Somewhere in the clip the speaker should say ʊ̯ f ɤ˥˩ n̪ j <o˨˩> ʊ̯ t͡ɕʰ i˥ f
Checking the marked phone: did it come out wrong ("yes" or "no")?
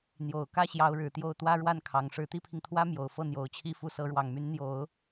no